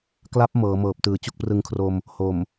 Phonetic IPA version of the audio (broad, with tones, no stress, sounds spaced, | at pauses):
k l a˦˥ p̚ m ɤː˩˦ m ɤː˨˩ p̚ t ɯː˨˩ t͡ɕ u˥˩ k̚ p r ɯ˧ ŋ kʰ r o˧ m | h o˨˩ m